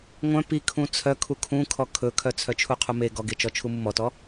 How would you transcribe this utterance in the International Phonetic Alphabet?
ŋʷœ̃ pikʰũ t͡sʰœ kʰukʰũ kʰɔkʰɵkʰœ t͡sʰœt͡ʃʰuqʰume ɡɔɡet͡ʃɔ t͡ʃʰumumɔtɔ

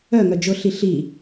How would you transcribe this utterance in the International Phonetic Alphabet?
œŋœ d͡ʒʊɬi ɬi

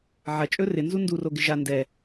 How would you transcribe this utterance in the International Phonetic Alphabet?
ʕɐt͡ʃʼɵ rɪnzu nduro ɡɪʒa ndɛ

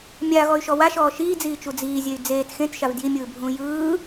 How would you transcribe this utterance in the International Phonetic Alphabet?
mʲaɣɔy̯ʃɔ waʃɔː ʃiːd͡ziːt͡ʃu d͡ziːzʲey̯ d͡zeːt xẽtʃav djimʲɯːbʱũː jɯː

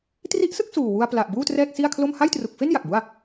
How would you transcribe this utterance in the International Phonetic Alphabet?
tri˦˥ʔsɯ˥˩k̚ suː˨˩wu˧a̯ pla˨˩ʔ buː˥˩trɛː˥˩k̚ si˥˩a̯kʰlo˥˩m ha˥˩jtru˨˩k̚fe˥˩n ja˨˩k̚bu˥˩a̯

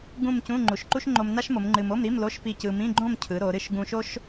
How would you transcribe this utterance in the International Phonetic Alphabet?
ɡũ˥˧mcũ˧˥˧ ŋ͡ǃu˩˧ʃǃu˥ʃŋ͡ǃo˧m na˥ʃmo˩˧m ŋ͡ǃɨ˧m o˧˥˧mɾi˧˥˧mlo˧˥˧ʃ pi˥˧cɯ˧ mĩ˧˥˧ɡ͡ǃõ˥˧mcʰɯ˩˧ ɾo˩˧ɾɨ˥ʃ ɡũ˧ʃo˥ʃ

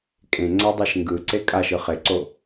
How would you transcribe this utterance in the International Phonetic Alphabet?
kʼẽŋ͡ǀadˤeʃ ŋɡɯǀe kʼaʃɯ χeǀo

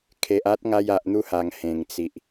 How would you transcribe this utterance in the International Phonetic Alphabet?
kʰe˨ʔ a˦t̚ŋa˧j a˨ʔn̪u˥˧ha˨˩ŋ hẽ˨˩ŋt͡si˨ʔ

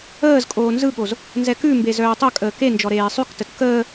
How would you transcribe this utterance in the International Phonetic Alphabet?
əːzkʼoː nzɯɠoz | nzɛkʉmbe zœːtˤœkʼəː kend͡ʒɔ ɾeːsˤʉktət kəː

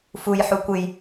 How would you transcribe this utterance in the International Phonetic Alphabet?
fuj ħukʷɨj

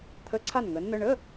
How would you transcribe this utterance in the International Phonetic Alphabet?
t̪ʰə˧˥˧ǀʰa˥˩nŋə˩˥nn̪ə˧˥˧ ɳə˧˥˧

